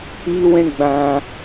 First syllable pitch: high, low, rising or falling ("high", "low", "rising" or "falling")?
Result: high